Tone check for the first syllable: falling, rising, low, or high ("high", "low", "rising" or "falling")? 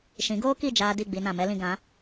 rising